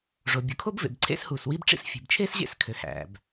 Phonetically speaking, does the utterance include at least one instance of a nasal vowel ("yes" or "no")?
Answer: no